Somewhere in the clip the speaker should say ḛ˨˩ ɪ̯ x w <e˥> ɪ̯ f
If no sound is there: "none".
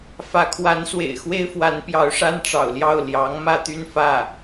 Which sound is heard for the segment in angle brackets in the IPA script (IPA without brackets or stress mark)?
e˥